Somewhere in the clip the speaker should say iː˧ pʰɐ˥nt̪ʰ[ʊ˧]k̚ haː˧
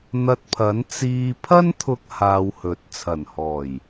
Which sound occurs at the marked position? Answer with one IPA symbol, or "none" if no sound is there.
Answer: ʊ˧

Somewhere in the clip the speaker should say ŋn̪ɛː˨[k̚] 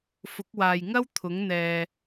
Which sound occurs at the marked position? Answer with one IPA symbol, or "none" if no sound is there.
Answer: none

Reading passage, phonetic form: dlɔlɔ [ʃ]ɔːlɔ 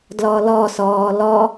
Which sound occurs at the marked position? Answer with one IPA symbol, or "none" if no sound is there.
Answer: s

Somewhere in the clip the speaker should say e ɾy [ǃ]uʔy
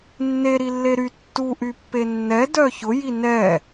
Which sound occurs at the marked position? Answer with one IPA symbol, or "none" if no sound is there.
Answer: tː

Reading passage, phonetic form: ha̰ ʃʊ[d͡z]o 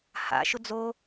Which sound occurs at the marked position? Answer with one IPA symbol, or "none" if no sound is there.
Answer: d͡z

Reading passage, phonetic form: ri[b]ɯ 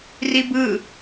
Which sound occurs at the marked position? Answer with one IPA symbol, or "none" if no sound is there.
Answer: b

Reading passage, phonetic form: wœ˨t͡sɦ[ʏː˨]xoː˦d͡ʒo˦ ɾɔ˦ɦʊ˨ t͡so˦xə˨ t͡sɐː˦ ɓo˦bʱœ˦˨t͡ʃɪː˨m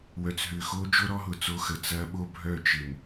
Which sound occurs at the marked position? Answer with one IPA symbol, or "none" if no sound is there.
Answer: ʏː˨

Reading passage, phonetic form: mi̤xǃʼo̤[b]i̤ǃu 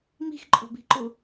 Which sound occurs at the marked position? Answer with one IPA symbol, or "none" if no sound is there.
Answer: b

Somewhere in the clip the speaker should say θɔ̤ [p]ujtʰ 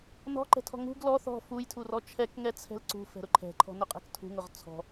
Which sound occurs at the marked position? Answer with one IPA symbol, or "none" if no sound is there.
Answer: f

